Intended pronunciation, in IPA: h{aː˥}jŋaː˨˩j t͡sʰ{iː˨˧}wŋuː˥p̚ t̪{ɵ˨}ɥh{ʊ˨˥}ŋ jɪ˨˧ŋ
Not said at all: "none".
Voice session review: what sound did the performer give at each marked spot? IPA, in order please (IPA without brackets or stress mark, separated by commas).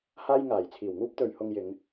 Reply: aː˥, iː˨˩, ɵ˨, ʊ˧